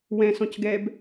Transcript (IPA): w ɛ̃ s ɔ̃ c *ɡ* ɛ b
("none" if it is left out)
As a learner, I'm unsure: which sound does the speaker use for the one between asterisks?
ɡ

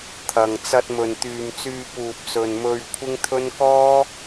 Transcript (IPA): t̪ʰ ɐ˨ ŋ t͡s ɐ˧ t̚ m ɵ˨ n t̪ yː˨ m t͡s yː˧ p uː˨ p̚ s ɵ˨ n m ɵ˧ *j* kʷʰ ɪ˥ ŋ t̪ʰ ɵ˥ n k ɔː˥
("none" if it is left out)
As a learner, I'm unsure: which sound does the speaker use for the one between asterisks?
ɥ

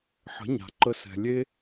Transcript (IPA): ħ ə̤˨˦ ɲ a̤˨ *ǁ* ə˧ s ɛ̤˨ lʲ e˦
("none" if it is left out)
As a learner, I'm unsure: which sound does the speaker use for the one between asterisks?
ǃ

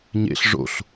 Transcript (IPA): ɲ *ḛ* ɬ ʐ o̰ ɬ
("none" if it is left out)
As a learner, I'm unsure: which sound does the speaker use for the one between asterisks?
ḛ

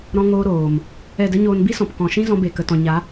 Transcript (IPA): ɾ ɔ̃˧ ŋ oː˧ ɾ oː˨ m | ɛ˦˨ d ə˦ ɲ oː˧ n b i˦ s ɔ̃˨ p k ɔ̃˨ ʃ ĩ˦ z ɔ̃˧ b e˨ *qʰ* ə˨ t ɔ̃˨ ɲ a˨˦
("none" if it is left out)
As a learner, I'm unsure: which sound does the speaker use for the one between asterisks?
k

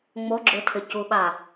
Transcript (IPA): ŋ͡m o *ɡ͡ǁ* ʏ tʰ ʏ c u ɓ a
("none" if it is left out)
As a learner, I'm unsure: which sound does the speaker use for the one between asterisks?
ɡ͡ǁ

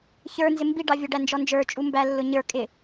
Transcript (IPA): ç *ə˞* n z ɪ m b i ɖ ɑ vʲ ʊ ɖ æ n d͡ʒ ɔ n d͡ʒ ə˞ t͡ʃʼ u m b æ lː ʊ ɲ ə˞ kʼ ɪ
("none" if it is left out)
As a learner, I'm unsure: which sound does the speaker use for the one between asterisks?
ə˞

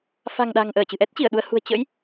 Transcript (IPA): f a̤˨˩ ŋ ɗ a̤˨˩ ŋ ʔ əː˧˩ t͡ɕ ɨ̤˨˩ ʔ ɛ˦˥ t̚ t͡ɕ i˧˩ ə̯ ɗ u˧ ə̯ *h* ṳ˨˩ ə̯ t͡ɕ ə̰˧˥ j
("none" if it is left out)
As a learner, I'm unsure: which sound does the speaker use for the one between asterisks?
h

